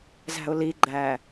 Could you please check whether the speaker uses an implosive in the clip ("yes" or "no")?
no